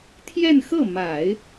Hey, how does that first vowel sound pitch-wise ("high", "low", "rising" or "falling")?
falling